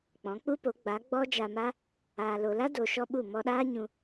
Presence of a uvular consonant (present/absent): absent